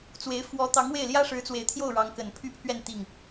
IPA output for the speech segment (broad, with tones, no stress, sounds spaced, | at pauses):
t͡s w e˧˥ ɪ̯ f w ɔ˧˥ t̪ ɑ˧˥ ŋ w e˥˩ ɪ̯ l j ä˥ ʂ ɻ̩˧˥ t͡s w e˨˩ ɪ̯ t̪ʰ j o˥˩ ʊ̯ ɻ ɑ˧˥ ŋ k ə˨˩ n pʰ y˥˧ pʰ ɥ ɛ˥˧ n t̪ i˥˩ ŋ